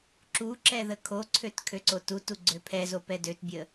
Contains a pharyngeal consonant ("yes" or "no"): no